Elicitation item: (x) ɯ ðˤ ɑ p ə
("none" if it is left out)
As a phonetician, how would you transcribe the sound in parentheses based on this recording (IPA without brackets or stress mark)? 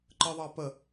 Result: ǃ